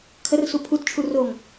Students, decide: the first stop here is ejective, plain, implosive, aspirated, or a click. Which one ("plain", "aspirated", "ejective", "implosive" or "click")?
aspirated